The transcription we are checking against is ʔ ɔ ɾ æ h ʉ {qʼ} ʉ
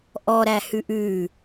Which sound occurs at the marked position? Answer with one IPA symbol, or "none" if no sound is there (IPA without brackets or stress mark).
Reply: ʔ